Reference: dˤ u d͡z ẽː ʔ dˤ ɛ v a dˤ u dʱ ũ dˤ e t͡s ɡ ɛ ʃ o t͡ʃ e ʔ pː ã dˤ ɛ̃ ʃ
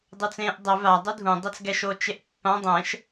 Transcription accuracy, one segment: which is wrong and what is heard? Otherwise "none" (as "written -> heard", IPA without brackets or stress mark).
d͡z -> t͡s